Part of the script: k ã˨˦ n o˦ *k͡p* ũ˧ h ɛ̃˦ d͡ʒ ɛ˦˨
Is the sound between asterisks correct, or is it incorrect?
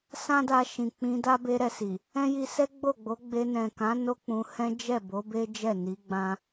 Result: correct